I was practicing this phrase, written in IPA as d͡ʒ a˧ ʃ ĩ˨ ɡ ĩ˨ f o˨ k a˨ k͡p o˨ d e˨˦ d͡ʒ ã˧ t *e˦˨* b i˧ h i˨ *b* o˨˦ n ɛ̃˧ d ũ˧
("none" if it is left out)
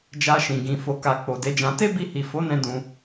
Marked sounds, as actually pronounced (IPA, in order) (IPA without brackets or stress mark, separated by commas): e˦, f